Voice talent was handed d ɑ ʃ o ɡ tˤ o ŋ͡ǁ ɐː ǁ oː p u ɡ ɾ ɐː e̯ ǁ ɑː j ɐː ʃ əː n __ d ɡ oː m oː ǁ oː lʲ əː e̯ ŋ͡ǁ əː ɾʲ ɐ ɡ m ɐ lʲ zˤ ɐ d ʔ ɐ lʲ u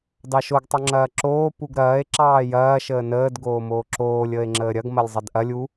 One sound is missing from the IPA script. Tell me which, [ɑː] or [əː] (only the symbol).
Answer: əː